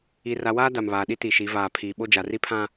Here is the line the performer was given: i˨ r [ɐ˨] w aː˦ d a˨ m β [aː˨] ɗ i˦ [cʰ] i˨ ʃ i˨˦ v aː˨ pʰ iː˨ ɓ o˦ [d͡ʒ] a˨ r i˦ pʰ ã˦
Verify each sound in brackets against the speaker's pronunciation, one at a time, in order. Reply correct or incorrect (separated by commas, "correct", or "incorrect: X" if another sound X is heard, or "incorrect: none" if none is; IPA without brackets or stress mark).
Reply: incorrect: a˨, correct, incorrect: t, correct